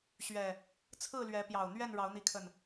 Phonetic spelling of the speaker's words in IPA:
ɕ ɥ ɛ˨˩ | t͡sʰ ɹ̩˥˨ l ɥ ɛ˨˦ p j ɑ˨˩ ʊ̯ n̪ ɥ ɛ˥˨ n ɻ ɑ˨˦ ʊ̯ n̪ i˨˦ kʰ ə˨˩ n

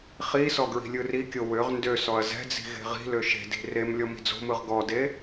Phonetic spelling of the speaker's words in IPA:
χ i s ɔ ɡ ɹ i̤ lʲ ɯ r i kʲ o w ø ʁ n d ø s ɔ ɐ̯ z ɛ̤ d͡z i̤ ɣ e̤ ʁ i̤ l ø ʃ e̤ d i̤ r e m lʲ ɔ m i̤ d͡z o̤ m ɯ ʁ ɡ ɔ d e

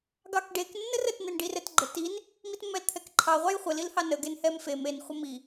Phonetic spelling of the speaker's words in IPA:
ɡ ɑ k ɖ e k nː ə r ə t n ɛ n ɖ i r ɛ t ɡ͡ǃ ə t i n | m i t mː ɛ l t̪ʰ ɛ k ǃʰ ɑ ʁʷ ɑ j χʷ ə l i l h ɑ n ə ɡ e n h ɛ m f e m e n χʷ ə m i

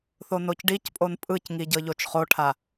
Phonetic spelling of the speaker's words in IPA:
θ o n o c ɖ i c pʼ o n pʼ ɯ c ŋ i ɟ ɤ ʎ o t͡ʃ χ o ʈʰ a

